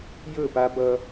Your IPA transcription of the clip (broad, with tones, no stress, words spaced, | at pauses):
jɵ˦˨pa˦bʌ˦